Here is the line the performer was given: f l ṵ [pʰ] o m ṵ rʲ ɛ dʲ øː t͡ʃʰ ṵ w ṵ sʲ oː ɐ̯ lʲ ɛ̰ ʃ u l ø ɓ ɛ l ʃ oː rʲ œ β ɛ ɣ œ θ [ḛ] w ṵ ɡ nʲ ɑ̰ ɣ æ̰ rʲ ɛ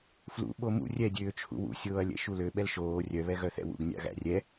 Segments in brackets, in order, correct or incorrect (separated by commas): incorrect, incorrect